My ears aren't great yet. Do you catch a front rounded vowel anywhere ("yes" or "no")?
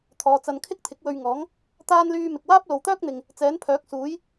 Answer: yes